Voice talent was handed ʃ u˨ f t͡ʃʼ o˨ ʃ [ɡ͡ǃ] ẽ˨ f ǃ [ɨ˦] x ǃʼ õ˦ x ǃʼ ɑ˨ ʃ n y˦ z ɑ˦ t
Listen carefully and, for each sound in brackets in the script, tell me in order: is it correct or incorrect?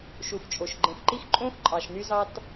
correct, incorrect

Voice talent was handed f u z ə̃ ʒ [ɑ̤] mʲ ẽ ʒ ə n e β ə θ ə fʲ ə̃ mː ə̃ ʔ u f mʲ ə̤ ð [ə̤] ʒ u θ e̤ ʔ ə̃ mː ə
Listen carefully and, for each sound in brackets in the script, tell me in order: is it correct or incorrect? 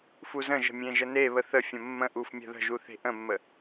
incorrect, correct

